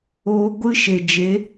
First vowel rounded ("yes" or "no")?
yes